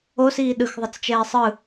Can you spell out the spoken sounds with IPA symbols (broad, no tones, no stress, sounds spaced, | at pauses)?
o s iː ɗ ɯ x ðˤ ɯ t͡s t͡ʃ ɛː sˤ ɯ